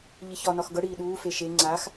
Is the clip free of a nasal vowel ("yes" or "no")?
yes